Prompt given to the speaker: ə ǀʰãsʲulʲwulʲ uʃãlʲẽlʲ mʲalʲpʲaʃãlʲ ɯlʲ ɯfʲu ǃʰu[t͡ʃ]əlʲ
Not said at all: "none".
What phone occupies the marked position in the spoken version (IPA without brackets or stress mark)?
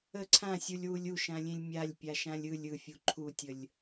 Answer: tʲ